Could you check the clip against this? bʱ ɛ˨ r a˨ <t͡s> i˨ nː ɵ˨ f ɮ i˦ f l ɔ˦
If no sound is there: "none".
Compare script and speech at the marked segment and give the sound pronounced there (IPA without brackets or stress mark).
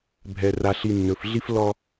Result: ɬ